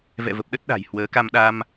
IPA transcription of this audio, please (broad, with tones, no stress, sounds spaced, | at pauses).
v ɛ̰˧˨ v ə˨˩ p̚ ɗ ə˦˥ t̚ ɗ a̤˨˩ j h w əː˨˦ k a˧ m ɗ a˧ m